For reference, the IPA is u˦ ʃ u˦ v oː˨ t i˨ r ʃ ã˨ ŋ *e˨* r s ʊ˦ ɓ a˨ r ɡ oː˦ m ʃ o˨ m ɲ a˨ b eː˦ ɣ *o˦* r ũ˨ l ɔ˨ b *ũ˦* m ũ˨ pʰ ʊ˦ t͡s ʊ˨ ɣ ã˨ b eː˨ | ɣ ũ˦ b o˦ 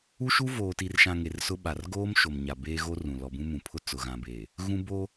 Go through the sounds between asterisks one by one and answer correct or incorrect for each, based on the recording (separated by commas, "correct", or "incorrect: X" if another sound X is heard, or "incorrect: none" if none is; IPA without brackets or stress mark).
correct, correct, correct